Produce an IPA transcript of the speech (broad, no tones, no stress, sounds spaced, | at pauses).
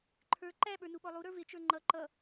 ǃʰ ə˞ ǃ æ ɓ ə˞ n u ɓ ɔ lˠ u ɾ ə˞ v ɪ t͡ʃ ə˞ ŋ͡ǃ ʌ ǃ ʌ